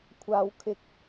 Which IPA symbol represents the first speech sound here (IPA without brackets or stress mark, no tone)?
kʷʰ